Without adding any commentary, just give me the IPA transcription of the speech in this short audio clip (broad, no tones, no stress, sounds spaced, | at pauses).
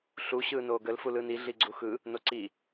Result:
ɬ u ɕ ɯː n oː ɡ ə l f u l ɯ n i ɮ i ɡ͡ǀ u x ɯ | n o ǀ i